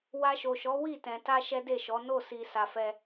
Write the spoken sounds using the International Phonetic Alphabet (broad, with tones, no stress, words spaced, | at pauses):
wa˧ʃo˨ʃɔ˨˦ wi˦˨tɛ̃˨ ta˧ ʃɛ˦de˦˨ʃɔ˨˦ no˦˨si˨ sa˨fɛ˧